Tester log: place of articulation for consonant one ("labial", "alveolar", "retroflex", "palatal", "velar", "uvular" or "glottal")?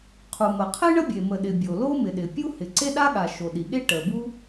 uvular